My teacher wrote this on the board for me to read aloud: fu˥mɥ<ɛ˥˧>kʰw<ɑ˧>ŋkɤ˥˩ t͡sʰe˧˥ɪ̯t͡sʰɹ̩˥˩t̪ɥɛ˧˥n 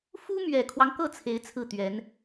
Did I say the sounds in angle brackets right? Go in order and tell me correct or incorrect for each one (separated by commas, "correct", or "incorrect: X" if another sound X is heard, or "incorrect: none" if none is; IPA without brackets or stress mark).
incorrect: ɛ˨˩, incorrect: ɑ˦